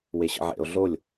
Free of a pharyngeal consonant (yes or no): no